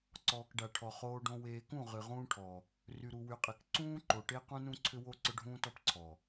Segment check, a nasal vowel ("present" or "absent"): present